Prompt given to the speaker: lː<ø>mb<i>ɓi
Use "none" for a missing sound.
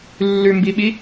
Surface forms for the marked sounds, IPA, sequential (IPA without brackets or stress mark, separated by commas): ʉ, i